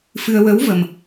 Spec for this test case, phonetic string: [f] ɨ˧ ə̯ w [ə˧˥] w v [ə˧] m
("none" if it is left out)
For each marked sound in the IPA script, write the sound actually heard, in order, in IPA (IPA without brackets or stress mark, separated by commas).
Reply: f, ə˧˥, ə˧